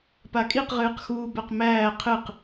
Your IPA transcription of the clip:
p a kʼ i q ʁ ɨː q x uː b ɛ q m æː qʰ ɨ q

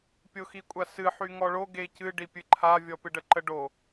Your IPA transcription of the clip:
pʲ o x i kʷʼ a s ɨ ħ y ŋ ɔ ɭ o ɡ e c ɨ ɖ i pʲ ɨ ǃʰ a vʲ ɔ p ɨ ɖ ə ǃ ə ɖ o

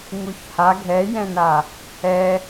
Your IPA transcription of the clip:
ŋ u ç h a ɡʱ ɛ j ɛ̃ n a | ɛ

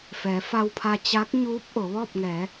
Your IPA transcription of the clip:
f ɛː˩˧ f a˧ w pʰ a˧ t͡ɕ a˧˥ k̚ ɲ uː˧˥ p̚ ʔ o˩˧ ʋ ɔː˥˨ p̚ ŋ ɛː˩˧

